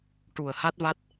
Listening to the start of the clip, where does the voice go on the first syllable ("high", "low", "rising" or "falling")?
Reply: low